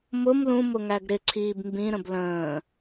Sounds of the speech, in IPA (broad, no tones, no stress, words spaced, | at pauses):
mʊm lũmʊŋæɡ ɾɪǀʰiːb mbĩɾə̃b lə̃ː